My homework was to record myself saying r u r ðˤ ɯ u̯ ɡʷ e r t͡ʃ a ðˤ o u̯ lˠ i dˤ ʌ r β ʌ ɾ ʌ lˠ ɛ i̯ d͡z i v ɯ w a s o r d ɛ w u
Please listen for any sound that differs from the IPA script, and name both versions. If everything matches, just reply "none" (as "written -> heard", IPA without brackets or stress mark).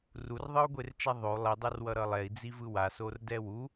β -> w